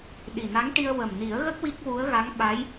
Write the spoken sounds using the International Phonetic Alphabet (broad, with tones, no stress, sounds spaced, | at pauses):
ɗ i˨˩ n a˧˥ ŋ ʈ i˧ ə̯ w ə˨˩ m n i˨˩˦ ə̯ ɣ ə˦˥ k̚ w i˦˥ k̚ w u˧˥ ə̯ ɣ a˧˥ ŋ ɓ a˧˥ j